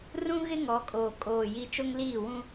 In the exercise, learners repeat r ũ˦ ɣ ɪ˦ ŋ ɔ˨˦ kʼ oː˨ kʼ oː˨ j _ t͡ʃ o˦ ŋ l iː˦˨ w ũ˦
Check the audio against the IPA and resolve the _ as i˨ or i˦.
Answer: i˦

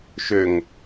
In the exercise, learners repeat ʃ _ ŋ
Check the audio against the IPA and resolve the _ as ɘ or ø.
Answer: ø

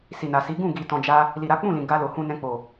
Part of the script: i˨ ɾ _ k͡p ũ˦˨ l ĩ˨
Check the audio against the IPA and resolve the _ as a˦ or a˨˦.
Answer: a˨˦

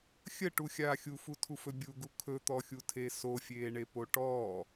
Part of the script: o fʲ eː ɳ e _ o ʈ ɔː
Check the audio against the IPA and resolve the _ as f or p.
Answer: p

